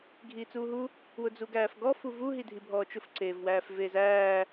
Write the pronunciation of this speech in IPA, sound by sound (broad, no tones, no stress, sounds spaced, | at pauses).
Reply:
ɡʱ iː t͡s uː ɦ u | w ʊ d͡z u ɡ æː f ɡ ɔ f u v u ɦ i dʱ i bʱ ɔː t͡ʃ ʊ f ǀ eː v w æː f v eː z æː